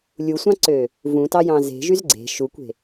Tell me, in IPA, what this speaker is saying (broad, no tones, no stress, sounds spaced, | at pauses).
lʲ u sʷ ɑ̃ ǀ ø | v ũ t ɑ j ɑ̃ z e̤ ʒ y z ɡ͡ǀ e̤ ʃ u kʷ e̤